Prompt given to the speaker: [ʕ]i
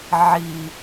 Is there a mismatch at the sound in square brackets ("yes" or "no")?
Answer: no